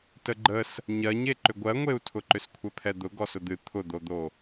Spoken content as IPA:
t ə ɡ͡ǃ ə s | ɲ ɜ ɲ e ǃ ʏ ɡʷ ɜ ŋʷ e u̯ tʰ ʊ ǃ ʏ s kʷʰ ɛ pʰ ɛ d̪ ʊ ɡ ɔ s ʊ d̪ ɨ t̪ʰ ʊ d̪ o d̪ o

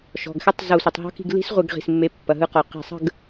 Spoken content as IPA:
ʃ ɔ̤˩˧˩ ɡ x ɛ˦˥ tˤ z ɤ˧˩˧ sʷ ə˩ tˤ ɦ ɔ̤˦˥ k i̤˦˨ ɡ l i̤˦˥ s ʁʷ ɯ˧˩˧ ɡ ʁ i̤˩˧˩ s mː e˨˦ pː ɐ˩ ɦ ɯ˨˦ q ɔ˩ q i̤˧˩˧ sˤ ə̤˦˨ ɡ

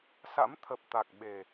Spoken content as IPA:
s a̰˧˥ m t̪ʰ ə˨˩ p̚ t̪ a˨˩ k̚ ɓ e˨˩

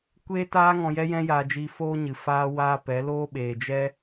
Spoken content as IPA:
kʷ eː˦ t aː˦ ŋ ɔ̃˧ j ɛ˦ j ɛ̃˦ j aː˧ d͡ʒ iː˧ f oː˦ ɲ ɨ˨ f aː˦ w aː˦ p ɛ˨˦ l oː˦ ɓ eː˨ d͡ʒ ɛ˦

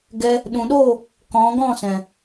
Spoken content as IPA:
ɡ ɛ˧ | ɗ ũ˨ ɗ oː˦˨ | k ɔ̃˨˦ ɡ ɔ̃˦˨ s ɛ̃˨

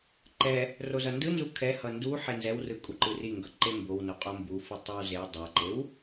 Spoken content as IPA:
ǃ ɛ | r o z ʌ n d ɯ n z u kʰ ɛ h ʌ n d u ħ e n z ɛ w r ɯ kʼ u ǃ ɯ r i ŋ ɡ ʌ ǃ e m b o w n o qʼ o m b u f ɯ tˤ o w z e w dˤ a ǃ e w

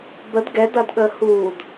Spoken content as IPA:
b ə d ɡ ɛ d ɐ d ɠ əː h uː d

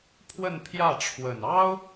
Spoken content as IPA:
pʰ w ə˥˧ n pʰ j ä˥˩ ʈ͡ʂʰ w ə˨˩ n ɑ˥ ʊ̯

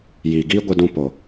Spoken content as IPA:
j iː˨ ɡ iː˦ ɡʷ ɨ˧ d ũ˧ p o˨

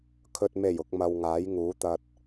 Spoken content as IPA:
kʰ ɵ˨ t̚ m e˨˩ j ʊ˨ k̚ m ɐ˧ w ŋ aː˨˥ j ŋ uː˨˥ t̪ ɐ˧ t̚

